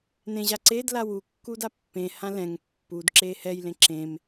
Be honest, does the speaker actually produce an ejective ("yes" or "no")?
no